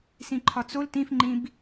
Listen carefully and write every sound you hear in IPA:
s ĩ ǃʰ ɒ t͡s o l t ĩ f ŋ͡ǃ ĩ b

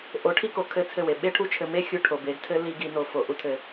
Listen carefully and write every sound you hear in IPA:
ʔ o˨˦ ʈʰ i˦ k o˨ kʰ ɘ˦ t͡sʰ ɘ˦˨ w e˨ ɓ e˦ ʈʰ u˦ t͡ʃʰ ɘ˧ m e˦ xʲ u˧ ʈʰ o˨ b e˨˦ ɡ tʰ ɘ˦ l i˦ ɡ i˧ n o˧ f o˨ ʔ u˧ tʰ ɘ˨

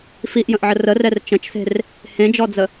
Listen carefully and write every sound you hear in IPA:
f i ʔ j ə̃ ʔ ʕ ə r ə r ɛ r t͡ʃ ə̃ t͡ʃ s e̤ r | h ẽ d͡ʒ ɔ d͡z ə

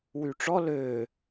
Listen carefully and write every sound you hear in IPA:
w y ʈ͡ʂ ɔ l ø

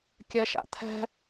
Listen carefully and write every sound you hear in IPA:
kʲ ɛ ʃ a̰ t̪ʰ ɛ̤

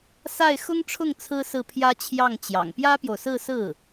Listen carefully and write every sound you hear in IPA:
s a˥˩ ɪ̯ x ʊ˥ ŋ ʈ͡ʂʰ ʊ˥˩ ŋ t͡sʰ ɹ̩˥ s ɹ̩˥˩ pʰ j ä˥ t͡ɕʰ j ɑ˥˩ ŋ t͡ɕ j ɑ̰˨˩ ŋ p j ä˥ p j o˨ ʊ̯ s ɹ̩˥˧ s ɹ̩˥˩

